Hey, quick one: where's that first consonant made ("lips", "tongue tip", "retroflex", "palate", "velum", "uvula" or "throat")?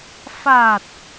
lips